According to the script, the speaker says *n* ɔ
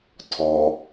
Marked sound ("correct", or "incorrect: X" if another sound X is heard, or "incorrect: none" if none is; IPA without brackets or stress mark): incorrect: tʰ